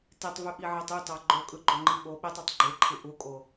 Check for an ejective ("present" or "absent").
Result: present